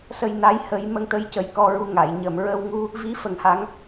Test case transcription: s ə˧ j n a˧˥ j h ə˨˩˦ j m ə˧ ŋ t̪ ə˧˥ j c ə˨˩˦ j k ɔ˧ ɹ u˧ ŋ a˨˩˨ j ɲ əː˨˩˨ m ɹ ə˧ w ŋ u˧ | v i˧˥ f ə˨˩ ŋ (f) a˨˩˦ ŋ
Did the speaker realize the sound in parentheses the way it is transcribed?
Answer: no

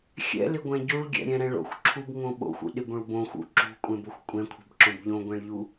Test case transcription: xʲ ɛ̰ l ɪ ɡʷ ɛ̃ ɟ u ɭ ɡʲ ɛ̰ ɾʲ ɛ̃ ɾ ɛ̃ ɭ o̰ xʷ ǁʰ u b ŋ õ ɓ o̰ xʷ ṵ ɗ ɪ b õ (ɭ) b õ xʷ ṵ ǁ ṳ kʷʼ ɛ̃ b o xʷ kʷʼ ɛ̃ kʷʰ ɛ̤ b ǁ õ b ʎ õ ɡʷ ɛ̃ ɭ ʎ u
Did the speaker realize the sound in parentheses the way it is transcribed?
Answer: yes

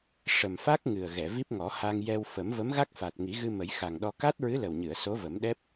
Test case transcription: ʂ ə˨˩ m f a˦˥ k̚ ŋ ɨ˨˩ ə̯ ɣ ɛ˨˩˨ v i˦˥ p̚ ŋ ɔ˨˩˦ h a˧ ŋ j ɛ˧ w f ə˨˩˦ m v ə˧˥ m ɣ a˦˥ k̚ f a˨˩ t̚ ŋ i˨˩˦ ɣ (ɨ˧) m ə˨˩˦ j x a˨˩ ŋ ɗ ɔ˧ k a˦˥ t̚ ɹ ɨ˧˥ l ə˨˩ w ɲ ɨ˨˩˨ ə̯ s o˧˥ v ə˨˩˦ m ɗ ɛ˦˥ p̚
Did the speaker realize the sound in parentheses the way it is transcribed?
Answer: yes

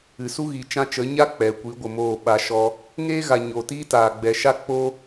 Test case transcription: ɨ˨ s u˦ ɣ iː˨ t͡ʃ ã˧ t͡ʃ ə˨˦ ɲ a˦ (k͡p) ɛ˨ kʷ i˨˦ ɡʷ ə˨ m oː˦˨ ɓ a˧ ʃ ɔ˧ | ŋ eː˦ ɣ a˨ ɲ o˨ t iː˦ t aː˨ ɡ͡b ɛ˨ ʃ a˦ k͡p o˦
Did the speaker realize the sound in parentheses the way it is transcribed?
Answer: yes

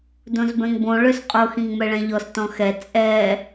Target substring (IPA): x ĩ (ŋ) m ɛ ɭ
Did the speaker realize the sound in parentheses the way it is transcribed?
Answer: yes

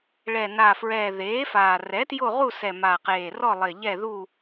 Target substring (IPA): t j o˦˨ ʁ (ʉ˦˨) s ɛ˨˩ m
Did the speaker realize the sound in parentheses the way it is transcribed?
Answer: no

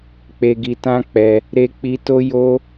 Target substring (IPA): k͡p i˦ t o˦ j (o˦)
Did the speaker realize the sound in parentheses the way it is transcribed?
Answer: yes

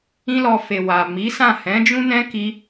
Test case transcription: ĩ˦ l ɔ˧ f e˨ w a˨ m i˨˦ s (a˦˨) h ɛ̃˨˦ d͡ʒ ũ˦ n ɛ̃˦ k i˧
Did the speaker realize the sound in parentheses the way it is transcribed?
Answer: no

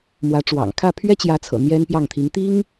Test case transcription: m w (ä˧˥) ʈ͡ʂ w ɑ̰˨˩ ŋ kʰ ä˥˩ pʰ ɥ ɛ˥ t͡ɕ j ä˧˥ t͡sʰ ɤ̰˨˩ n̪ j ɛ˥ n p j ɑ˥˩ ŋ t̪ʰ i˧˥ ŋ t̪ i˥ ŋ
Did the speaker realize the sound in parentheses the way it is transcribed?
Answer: yes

